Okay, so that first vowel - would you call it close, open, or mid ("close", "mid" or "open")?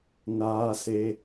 open